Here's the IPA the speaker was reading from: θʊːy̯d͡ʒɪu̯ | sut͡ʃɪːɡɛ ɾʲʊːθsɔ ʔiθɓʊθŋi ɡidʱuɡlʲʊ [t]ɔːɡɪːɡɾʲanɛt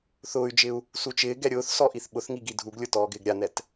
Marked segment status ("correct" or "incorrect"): correct